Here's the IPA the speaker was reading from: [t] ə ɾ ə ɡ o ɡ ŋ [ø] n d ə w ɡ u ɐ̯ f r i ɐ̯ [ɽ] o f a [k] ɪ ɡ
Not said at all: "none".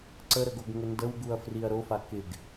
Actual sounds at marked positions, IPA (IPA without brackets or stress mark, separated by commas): ǀ, ə, ɾ, k